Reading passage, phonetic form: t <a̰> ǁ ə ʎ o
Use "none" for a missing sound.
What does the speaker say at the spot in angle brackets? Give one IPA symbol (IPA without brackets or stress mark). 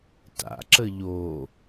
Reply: a̰